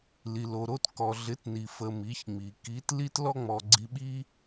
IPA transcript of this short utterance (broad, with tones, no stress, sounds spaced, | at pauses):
l i˨ l o˨ ɾ o˧ t k ɔ˨ ɮ ɪ˨˦ t n i˨ f ə˧ m i˨˦ ç ŋ͡m i˨ k i˨˦ t l i˦ t l ɔ˦ ŋ͡m ɔ˧ ɡ͡ǀ i˧ ɓ i˦